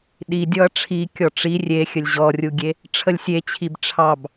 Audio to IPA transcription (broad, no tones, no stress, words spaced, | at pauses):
ɗi dʲɔɐ̯ʈ͡ʂʰi kʲɔʈ͡ʂi rʲexʲəlʲ ʑɔrʲuɡʲe | ʈ͡ʂʰəlʲsʲet͡ɕʰib ʈ͡ʂʰɑb